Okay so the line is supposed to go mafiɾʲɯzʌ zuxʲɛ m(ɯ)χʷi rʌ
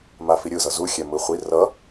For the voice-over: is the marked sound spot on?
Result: yes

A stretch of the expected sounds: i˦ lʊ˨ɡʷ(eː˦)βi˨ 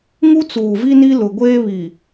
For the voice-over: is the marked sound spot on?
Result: yes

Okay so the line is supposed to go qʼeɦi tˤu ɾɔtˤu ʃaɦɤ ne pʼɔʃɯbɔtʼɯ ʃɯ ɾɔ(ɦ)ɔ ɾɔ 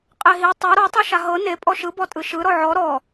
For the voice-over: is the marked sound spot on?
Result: no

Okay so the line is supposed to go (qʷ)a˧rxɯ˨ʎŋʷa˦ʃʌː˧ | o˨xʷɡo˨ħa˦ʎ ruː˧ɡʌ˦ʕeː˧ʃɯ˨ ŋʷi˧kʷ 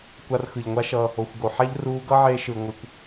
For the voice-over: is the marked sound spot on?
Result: no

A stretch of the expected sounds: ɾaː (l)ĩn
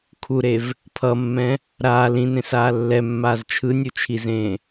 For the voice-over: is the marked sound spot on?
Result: yes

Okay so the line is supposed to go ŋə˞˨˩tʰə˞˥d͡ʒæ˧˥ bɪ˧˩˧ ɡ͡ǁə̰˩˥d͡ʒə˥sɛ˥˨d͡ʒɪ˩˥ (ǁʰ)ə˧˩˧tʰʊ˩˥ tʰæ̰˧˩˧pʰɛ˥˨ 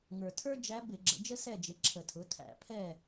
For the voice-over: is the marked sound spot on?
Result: yes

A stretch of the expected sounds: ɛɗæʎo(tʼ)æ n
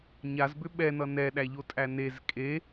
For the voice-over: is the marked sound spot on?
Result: yes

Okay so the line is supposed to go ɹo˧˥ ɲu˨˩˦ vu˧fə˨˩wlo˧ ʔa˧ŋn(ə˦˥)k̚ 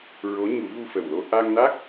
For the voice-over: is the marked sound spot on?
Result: no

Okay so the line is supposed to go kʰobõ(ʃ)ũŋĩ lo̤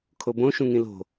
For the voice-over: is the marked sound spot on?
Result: yes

